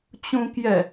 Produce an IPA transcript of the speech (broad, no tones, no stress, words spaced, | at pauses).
t͡ɕũkjɛ